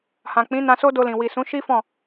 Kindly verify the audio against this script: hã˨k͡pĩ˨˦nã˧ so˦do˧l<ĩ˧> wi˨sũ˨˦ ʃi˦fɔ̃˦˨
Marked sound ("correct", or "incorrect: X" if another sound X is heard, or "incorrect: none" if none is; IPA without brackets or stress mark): incorrect: ĩ˨